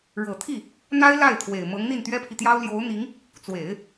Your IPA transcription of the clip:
ɻ ɤ˨˩ t̪ʰ i˥˩ | n̪ a˥ ɪ̯ l a˥˩ ɪ̯ t̪ʰ w e˨˩ ɪ̯ m ɤ˧˥ ŋ n̪ i˥˩ n t̪ ɥ ɛ˥ pʰ i˨ t̪ j ɑ˥ ʊ̯ l j o˧˥ ʊ̯ n̪ i˧˥ ŋ | t͡s w e˨˩˦ ɪ̯

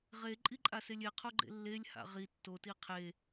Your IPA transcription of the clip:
ʁ e ǃʼ i ǃʼ a s e lʲ e qʰ o ɡ͡ǃ ḛ lː e lʲ h a̰ ʁ i tː o t i qʰ e

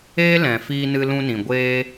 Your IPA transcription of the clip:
eː˦ l ɛ̃˨ f iː˧ n ɨ˧ l ũ˧ n ĩ˨ ɡʷ eː˧

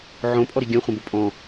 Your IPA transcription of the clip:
ʕ õ pʼ ɔ ɾ i ɡʲ ɐ̃ χʷ ɐ̃ b o pʼ ɔ̃

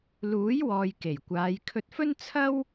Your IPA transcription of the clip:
l uː˨˥ j w ɔː˨ j k e˨˩ j kʷ aː˨˧ j kʰ ɵ˧ t̚ f ɵ˥ n t͡sʰ ɐ˥ w

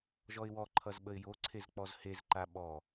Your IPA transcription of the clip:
ʒ ɔ ɪ̯ w ɔ ǃʰ ʌ z ɓ ə ɪ̯ j o ǀʰ e z k͡p ɔ z h e z ǃ a ɓ ɔ

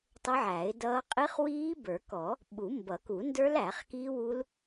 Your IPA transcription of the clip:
tˤ ə˦˥ ʕ æ˨˩˦ ɪ̯ d ʌː˦˥ qʼ i˦˥ χ w iː˦˥ b ə˞˨˩˦ k ɔ˨˩˦ | ɓ u˨˩˦ m b ʌ˨˩˦ k u˨˩˦ n d ə˞˦˥ l æ˨˩˦ χ k iː˦˥ w u˦˥ l

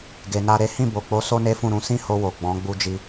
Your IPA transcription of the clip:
ɡ e˨ n a˧ ɾ e˦ h ĩ˦˨ b o˨ k͡p o˨˦ s o˦ n e˦ f ũ˦˨ ɾ ũ˧ s ĩ˦ h o˧ w o˨ ɡ͡b ɔ̃˨˦ ɡ͡b u˦ d͡ʒ i˦

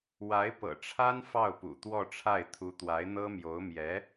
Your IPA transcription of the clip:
w a˧˥ ɪ̯ p ɤ̰˨˩ ʈ͡ʂʰ a˥ n f ɑ˥˩ ʊ̯ p ṵ˨˩ t̪ w ɔ˥˧ ʈ͡ʂʰ a˥˩ ɪ̯ t̪ʰ u˧˥ t̪ w a˧˥ ɪ̯ n̪ ɤ˥ m j o˧˥ ʊ̯ m j ɛ˧˥

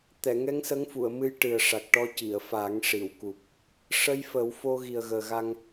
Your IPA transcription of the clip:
t̪ ɛ˨˩˨ ŋ ɛ˧˥ ŋ s ə˧˥ ŋ f u˨˩˨ ə̯ m ɨ˧˥ j ʈ ɨ˨˩ ə̯ ʂ a˨˩ k̚ ʈ ɔ˧ c i˨˩˨ ə̯ f a˨˩˦ ŋ ʂ i˨˩˨ w k u˨˩ p̚ | ʂ ə˧ j f ə˨˩˦ w f o˧ ɣ i˨˩ ə̯ ɣ əː˨˩ ɣ a˧ ŋ

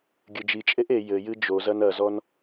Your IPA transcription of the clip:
ɡʲ ɨ d͡ʒ i t͡ʃʼ e ʔ e j ɘ j ɨ d͡ʒ o z ɐ n ɐ z ɔ n

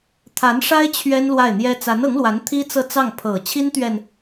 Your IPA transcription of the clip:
t̪ʰ a˧˥ n ʂ a˥ ɪ̯ t͡ɕʰ ɥ ɛ˥ n l w a˥˩ ɪ̯ n̪ j ɛ˥ t͡s a˧˥ n ɤ˧˥ ŋ l w a˧˥ n t̪ʰ i˥ t͡s ɤ˥˧ t͡s ɑ˥˩ ŋ pʰ ɤ˨˩ t͡ɕʰ i˥ n t̪ ɥ ɛ˨ n

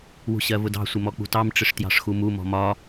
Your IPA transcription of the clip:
w ṳ ɕ ɜ v ʊ d ɑ̤ sʷ ɪ m ɔ k͡p ṳ t ɑ m ʈ͡ʂ ɪ ʂ t j ɑ̤ ʂ x u m u m ɔ̤ m ɒ

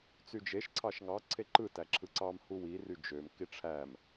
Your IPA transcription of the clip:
t͡s y d͡ʒ e ʃ ǀʰ ɑ ʃ ŋ ɑ ǀʰ e ǃ ɯ t æ ǁʰ ɯ ǀ ɑ m h u w i r y d͡ʒ ø m k i ʈ͡ʂʰ æ m

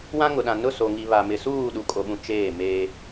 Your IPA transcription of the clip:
w ã˦ ŋ ʊ˨ ɗ ã˨ n ʊ˦˨ s o˨ ŋ i˨ β a˨ m ɪ˨ s uː˦˨ ɗ u˨ kʼ o˨ ɓ ũ˨ t͡ʃ eː˦˨ m eː˦

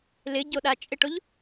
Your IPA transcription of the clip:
l ɪ ɟ o ɗ a t͡ʃʼ ɪ ʈ o ʎ

